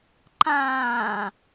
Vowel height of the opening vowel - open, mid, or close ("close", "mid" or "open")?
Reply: open